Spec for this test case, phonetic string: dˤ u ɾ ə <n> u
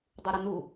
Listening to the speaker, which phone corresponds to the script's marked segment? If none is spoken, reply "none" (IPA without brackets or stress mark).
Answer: n